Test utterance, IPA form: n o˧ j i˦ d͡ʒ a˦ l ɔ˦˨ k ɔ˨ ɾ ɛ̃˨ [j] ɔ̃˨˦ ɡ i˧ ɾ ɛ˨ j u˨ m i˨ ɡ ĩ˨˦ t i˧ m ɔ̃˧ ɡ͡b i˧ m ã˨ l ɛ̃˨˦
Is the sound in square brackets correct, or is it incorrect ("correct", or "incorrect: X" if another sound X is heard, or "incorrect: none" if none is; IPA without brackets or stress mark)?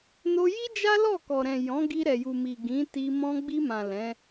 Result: correct